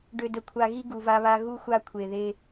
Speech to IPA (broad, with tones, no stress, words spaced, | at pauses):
ɖø˨də˨kʷʰa˨ɣi˦ ɡu˨va˦βa˦ ɣu˦xʷa˦ kʷʰe˨ðe˦